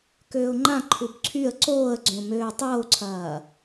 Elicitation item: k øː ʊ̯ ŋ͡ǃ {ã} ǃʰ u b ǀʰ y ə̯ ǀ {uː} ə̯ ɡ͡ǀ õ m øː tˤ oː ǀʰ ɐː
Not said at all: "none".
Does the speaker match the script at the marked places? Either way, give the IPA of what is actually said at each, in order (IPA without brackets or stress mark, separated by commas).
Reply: ã, oː